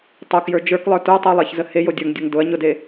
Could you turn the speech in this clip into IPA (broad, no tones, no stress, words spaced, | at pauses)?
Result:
tˤokjə˞ d͡ʒə˞klˠə˞ tə˞tˤulˠeçzə hejodʲə˞ŋdʲʊŋ dʊɐ̯ ɲʊde